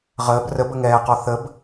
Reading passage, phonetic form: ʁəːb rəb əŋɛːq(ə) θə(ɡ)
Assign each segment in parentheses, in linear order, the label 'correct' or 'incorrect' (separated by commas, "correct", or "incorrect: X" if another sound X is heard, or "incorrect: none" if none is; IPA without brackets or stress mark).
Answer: incorrect: ɔ, incorrect: b